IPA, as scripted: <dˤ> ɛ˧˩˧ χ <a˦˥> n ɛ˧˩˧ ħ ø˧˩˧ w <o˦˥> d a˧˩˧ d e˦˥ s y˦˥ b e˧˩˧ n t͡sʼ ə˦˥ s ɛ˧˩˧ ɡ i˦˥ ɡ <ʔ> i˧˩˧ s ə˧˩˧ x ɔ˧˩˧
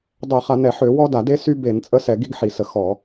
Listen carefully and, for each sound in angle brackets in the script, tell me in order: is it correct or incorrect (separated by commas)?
correct, incorrect, incorrect, incorrect